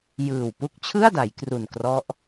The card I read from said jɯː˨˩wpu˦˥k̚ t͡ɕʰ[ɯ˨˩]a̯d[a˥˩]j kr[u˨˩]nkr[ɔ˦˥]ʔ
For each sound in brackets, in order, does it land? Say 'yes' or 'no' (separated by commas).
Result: no, no, yes, yes